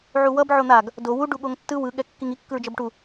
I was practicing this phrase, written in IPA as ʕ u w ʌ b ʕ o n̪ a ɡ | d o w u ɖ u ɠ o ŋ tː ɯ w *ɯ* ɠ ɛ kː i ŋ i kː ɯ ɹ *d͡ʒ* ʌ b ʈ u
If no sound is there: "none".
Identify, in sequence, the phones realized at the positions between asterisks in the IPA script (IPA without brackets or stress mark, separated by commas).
ɯ, d͡ʒ